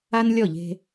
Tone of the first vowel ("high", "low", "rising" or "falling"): high